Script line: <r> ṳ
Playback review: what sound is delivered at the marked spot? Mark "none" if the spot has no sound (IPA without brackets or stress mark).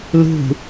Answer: l